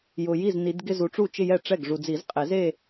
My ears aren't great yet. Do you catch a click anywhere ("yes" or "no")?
no